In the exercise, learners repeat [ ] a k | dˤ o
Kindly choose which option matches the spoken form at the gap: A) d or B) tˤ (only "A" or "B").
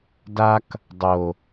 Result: A